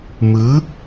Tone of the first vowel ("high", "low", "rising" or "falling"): rising